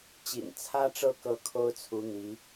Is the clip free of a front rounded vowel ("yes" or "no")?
yes